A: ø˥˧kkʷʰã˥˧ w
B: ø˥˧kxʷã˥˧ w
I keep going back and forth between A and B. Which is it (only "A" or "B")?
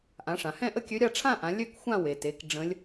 B